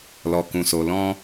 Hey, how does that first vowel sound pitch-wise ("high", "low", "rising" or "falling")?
low